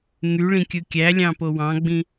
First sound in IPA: ŋ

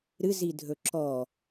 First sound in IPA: ɾ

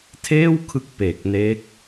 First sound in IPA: tʰ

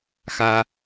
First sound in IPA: x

